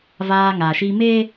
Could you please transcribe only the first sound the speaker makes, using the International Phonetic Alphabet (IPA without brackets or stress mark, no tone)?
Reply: v